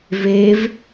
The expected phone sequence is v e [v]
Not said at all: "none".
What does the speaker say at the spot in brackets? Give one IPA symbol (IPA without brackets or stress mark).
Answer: v